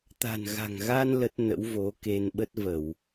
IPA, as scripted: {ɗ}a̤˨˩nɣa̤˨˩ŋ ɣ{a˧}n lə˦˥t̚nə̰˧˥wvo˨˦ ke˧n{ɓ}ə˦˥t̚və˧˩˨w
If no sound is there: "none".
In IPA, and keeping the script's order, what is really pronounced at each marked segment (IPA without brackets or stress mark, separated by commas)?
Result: t̪, a˧, ɓ